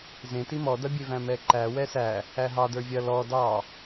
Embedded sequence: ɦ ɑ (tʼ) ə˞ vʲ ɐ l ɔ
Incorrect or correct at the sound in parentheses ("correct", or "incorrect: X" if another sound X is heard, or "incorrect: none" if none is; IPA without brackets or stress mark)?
incorrect: d